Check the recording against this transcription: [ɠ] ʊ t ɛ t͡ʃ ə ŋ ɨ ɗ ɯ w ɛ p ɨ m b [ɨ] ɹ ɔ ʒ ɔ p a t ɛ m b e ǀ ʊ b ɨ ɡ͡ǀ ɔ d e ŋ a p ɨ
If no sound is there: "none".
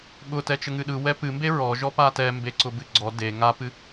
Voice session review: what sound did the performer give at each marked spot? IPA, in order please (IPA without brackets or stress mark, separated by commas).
ɠ, e